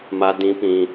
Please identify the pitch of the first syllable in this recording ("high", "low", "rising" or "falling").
high